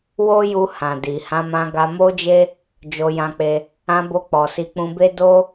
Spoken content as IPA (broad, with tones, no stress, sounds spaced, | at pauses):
w o˦ j u˧ h ã˨ d i˨ h ã˧ m ã˧ ɡ a˧ m o˦ d͡ʒ e˦ | d͡ʒ o˧ j ã˧ k͡p e˧ | ã˧ b o˧ k͡p ɔ˨ s i˧ k͡p ũ˧ b e˦ d o˦